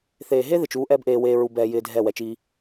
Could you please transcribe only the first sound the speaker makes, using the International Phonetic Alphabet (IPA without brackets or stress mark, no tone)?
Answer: θ